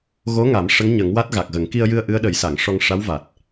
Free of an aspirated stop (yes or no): yes